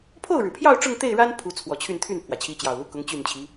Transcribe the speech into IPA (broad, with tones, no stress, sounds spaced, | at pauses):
pʰ o˥˩ ʊ̯ ɻ ɻ̩˩ pʰ j ɑ˥˧ ʊ̯ ʈ͡ʂ ʊ˥˧ ŋ t̪ e˥˩ ɪ̯ ɻ a˥ n pʰ u˧˥ t͡sʰ w ɔ˨˩ t͡ɕʰ y˥˧ n t̪ʰ y˥˩ n pʰ w ä˩ t͡ɕʰ i˧˥ t͡ɕ j ɑ˨˩ ʊ̯ l u˥ k ʊ˧˥ ŋ t͡ɕ y˥˩ n t͡ɕʰ i˧˥